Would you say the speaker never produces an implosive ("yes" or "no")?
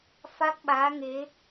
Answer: no